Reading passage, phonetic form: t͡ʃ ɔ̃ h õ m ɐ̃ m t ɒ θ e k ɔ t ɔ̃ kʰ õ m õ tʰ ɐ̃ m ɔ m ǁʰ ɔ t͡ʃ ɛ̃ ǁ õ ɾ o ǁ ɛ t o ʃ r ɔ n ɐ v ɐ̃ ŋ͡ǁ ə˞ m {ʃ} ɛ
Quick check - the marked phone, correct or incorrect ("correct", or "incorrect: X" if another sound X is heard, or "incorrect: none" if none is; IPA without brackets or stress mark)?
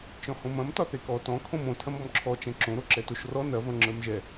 incorrect: ʒ